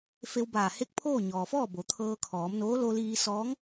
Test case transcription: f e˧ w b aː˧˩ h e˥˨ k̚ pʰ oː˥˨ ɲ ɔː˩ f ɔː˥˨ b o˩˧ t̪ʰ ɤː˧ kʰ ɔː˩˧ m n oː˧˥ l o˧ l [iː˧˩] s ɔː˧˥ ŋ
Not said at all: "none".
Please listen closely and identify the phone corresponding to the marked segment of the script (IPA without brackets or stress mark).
iː˧